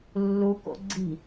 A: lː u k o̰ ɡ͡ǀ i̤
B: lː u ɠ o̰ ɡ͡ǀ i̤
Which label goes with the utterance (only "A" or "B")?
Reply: A